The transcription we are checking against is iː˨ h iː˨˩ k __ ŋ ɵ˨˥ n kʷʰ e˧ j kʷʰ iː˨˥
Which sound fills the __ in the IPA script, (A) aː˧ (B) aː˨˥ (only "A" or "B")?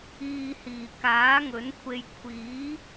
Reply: B